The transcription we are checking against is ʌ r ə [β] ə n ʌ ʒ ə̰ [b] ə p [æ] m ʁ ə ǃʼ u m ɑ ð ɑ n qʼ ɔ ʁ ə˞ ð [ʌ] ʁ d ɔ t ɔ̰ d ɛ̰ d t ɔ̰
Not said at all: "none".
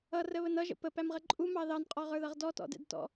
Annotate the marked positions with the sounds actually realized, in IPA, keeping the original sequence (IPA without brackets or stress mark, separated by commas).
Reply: β, p, æ, ʌ